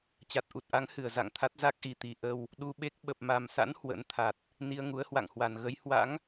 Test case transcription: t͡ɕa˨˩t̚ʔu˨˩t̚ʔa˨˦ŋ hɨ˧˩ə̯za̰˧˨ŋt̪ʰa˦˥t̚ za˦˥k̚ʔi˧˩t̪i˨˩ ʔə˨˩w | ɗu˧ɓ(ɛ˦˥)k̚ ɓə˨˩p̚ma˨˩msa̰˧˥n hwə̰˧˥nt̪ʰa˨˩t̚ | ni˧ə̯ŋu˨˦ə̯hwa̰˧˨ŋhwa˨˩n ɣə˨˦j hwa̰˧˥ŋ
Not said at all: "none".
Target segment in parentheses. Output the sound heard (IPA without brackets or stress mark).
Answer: e˦˥